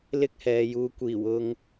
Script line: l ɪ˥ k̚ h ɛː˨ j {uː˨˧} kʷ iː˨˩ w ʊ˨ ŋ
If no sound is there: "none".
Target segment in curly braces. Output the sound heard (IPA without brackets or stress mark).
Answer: uː˨˧